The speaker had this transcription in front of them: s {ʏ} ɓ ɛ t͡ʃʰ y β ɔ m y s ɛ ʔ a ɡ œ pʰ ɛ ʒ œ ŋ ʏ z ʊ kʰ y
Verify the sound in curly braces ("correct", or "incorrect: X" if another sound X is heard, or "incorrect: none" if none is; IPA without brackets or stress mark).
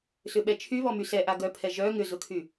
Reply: correct